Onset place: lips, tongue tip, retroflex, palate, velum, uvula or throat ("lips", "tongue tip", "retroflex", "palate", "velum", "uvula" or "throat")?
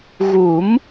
velum